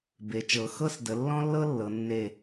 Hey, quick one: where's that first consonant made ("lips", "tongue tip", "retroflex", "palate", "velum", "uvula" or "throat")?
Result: lips